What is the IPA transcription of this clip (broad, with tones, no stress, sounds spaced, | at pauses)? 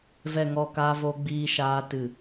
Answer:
v ɛ˨ ŋ ɔ˨ k aː˧ v o˧ ɡ͡b iː˧ ʃ aː˧ t ɨ˨